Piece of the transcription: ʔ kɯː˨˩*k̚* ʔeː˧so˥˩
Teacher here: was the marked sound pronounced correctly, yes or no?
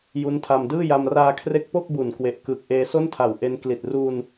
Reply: yes